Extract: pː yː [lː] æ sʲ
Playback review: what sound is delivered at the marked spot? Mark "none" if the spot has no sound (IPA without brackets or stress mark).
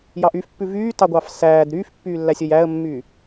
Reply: lː